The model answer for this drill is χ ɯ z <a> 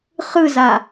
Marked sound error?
no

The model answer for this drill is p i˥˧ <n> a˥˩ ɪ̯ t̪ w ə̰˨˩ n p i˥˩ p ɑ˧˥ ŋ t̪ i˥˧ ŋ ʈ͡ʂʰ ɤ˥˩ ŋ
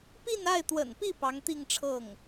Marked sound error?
no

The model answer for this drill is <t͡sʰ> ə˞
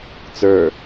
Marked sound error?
yes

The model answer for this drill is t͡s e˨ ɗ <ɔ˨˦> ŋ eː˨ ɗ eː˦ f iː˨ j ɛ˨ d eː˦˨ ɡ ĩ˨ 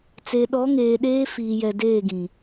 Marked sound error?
no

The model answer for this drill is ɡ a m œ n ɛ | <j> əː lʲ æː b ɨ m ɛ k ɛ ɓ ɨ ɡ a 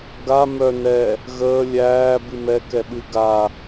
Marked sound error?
yes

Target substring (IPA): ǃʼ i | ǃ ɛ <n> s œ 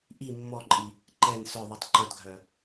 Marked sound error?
no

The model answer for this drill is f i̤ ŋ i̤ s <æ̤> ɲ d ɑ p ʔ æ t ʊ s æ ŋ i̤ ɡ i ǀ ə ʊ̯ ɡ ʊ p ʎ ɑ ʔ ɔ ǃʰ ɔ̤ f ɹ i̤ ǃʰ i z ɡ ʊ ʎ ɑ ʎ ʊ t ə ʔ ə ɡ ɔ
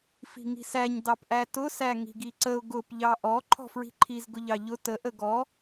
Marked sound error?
yes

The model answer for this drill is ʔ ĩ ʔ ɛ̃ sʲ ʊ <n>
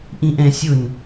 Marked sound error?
no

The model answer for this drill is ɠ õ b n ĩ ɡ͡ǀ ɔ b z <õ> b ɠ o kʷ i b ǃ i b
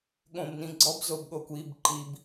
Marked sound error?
yes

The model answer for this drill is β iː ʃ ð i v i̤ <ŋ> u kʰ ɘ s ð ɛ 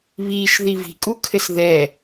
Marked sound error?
yes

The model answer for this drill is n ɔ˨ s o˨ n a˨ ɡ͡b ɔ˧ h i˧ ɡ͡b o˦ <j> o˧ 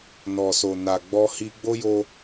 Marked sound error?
no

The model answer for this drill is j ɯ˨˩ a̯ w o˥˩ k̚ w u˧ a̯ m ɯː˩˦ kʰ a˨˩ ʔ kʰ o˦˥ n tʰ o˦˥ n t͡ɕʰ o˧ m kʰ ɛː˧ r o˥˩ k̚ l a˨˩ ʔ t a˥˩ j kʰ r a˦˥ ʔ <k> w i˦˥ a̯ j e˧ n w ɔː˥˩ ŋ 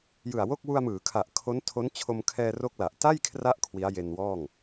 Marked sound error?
yes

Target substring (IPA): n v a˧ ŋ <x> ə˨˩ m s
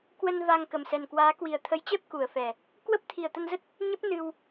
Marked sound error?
yes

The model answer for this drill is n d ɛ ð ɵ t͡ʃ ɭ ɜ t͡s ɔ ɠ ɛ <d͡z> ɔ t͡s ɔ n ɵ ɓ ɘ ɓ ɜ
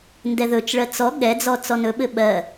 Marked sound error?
no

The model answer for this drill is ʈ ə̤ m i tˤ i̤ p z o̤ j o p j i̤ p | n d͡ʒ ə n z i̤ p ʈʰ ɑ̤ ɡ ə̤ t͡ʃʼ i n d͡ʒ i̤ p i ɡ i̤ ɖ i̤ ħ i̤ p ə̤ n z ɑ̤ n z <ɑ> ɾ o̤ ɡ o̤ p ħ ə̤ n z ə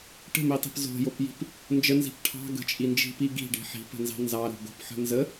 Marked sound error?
no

